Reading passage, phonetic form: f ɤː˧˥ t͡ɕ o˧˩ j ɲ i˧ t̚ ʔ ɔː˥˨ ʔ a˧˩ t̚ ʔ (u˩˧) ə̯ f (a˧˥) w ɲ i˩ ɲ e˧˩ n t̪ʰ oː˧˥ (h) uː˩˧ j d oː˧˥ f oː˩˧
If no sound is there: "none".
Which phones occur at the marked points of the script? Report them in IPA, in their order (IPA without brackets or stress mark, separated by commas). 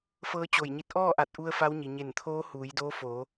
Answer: u˧, a˧˥, h